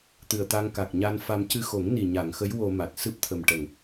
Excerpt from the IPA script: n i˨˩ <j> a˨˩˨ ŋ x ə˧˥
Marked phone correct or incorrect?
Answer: incorrect